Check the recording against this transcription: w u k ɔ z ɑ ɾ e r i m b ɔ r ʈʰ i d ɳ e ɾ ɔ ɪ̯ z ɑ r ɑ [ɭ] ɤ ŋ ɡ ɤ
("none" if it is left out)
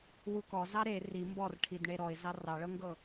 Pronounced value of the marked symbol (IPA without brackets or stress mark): ɭ